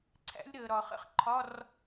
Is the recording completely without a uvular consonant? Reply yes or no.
no